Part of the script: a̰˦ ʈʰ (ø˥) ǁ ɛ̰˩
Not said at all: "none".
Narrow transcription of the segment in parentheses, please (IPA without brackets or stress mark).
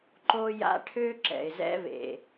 ø˥